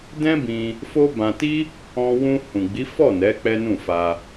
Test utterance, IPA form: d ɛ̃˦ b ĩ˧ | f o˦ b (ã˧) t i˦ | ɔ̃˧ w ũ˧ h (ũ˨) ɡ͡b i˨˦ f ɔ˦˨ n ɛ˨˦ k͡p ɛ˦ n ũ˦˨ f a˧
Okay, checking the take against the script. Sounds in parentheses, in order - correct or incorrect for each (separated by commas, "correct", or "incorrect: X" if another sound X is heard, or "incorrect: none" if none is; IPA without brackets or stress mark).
correct, correct